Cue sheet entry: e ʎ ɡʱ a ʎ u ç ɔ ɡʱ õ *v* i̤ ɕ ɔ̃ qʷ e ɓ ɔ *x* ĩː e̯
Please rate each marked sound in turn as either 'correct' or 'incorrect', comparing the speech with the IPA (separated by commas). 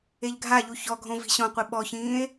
correct, incorrect